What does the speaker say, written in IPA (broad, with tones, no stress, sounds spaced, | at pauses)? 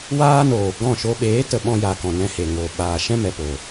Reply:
w aː˦ n oː˨ ɡ ɔ̃˦˨ ʃ o˧ ɓ eː˨˦ t ə˨ ɓ ɔ̃˧ j a˨ k ɔ̃˨ n ɛ̃˧ h e˨ ŋ o˨ ɓ aː˨ ʃ ɛ̃˦ m ɛ˨ p o˨